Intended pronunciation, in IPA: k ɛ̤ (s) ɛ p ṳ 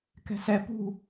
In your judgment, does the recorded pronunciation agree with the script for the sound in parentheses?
yes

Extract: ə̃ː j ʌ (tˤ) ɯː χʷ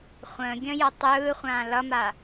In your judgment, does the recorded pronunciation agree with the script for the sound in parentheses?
yes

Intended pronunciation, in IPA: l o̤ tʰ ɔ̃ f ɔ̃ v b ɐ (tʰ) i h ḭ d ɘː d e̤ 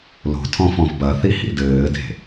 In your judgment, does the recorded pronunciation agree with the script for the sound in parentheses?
no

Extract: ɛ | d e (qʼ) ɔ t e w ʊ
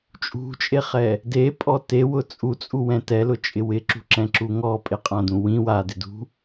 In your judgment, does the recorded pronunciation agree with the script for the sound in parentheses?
no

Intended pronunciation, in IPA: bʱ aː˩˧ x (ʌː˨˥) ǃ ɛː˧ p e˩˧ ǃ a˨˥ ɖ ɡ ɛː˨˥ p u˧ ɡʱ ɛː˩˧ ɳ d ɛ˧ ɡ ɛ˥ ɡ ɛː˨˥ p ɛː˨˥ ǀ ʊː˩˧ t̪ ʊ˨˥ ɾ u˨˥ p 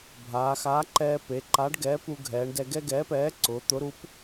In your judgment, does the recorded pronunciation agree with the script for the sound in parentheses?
no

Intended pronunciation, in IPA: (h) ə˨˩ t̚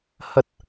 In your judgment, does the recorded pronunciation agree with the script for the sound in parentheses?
yes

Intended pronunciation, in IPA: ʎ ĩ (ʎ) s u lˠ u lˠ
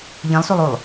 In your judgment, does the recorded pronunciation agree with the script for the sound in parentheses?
no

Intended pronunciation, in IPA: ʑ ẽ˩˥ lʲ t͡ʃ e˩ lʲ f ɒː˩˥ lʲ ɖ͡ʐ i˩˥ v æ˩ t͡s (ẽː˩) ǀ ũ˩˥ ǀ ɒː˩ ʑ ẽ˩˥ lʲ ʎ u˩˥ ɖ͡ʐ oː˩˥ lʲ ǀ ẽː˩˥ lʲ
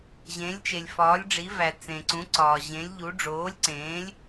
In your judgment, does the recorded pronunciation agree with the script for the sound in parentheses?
no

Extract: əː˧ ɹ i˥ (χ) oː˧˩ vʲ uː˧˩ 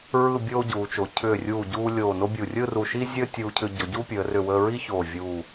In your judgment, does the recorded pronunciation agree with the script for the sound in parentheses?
no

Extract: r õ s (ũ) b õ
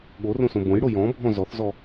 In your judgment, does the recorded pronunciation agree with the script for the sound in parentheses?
no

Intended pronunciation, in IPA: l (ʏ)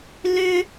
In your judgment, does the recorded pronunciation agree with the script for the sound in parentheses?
yes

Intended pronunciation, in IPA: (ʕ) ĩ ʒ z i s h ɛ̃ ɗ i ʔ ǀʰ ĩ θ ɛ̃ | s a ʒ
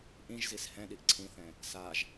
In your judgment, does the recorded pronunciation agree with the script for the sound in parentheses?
no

